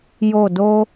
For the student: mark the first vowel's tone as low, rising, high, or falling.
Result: falling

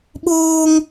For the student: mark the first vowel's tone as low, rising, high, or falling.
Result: high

